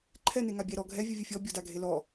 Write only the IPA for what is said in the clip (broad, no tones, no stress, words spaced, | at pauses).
ǃʰɛ neŋabʲɛ ɾɔ ɡʱɛ vʲɯvʲɯfʲɔ bʲɔdaɡʱelɔ